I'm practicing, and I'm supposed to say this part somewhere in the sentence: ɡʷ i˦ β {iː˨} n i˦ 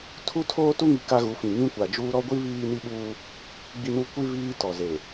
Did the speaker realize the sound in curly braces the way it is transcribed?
no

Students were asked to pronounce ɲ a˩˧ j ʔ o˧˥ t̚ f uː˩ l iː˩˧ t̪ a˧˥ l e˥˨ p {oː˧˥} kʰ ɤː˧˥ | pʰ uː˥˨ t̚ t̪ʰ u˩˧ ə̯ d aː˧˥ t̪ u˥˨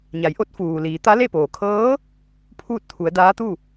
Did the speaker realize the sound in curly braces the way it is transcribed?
no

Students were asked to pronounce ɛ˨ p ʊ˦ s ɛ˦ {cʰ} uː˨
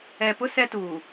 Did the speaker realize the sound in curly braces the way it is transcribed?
no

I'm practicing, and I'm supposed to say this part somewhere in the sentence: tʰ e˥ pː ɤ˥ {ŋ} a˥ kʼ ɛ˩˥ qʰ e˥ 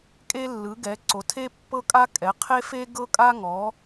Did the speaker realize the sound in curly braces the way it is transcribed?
no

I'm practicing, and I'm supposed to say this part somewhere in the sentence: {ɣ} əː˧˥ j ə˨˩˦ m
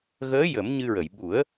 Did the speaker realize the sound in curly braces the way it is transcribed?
yes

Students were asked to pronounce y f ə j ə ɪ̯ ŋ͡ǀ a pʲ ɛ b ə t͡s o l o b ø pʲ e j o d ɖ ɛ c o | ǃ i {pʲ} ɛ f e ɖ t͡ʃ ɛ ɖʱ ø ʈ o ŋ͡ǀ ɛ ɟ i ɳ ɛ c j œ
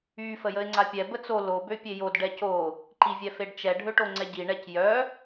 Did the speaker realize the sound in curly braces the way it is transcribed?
no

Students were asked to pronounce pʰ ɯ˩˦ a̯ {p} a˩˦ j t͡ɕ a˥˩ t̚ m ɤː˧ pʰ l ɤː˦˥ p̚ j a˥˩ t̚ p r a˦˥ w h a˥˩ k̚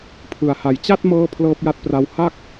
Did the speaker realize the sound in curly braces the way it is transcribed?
no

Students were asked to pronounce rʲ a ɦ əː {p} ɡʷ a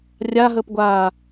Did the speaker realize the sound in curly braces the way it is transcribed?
yes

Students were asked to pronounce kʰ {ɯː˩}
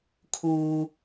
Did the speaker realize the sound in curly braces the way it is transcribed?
no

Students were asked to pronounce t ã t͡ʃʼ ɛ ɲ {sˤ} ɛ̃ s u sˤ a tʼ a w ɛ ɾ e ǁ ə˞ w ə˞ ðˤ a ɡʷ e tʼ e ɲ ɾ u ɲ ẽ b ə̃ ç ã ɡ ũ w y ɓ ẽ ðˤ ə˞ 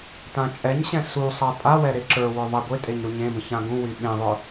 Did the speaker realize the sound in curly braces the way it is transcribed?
no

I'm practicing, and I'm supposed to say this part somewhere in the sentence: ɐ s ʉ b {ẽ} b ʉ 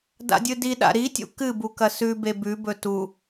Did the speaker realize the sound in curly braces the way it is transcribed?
no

